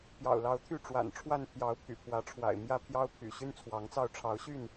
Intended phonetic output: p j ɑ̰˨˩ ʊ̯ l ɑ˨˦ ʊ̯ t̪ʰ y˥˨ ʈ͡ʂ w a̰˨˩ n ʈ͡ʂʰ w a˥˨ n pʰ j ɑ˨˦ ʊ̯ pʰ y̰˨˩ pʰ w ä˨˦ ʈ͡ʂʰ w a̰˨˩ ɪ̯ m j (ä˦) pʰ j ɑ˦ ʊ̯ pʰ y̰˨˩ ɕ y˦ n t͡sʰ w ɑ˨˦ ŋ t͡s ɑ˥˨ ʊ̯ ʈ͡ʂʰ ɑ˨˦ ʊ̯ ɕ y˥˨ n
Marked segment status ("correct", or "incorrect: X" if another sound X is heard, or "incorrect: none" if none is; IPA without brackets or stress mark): correct